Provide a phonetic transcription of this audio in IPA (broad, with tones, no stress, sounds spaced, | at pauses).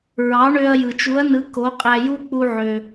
ɹ ɑ˩˥ ɳ ø˧ ɐ̯ j ɯ˩ t͡ʃ u˩˥ ɐ̯ n ɯ˩˥ k o˩˥ qʼ æ˧ j u˥ k͡p u˧ ʕ ø˩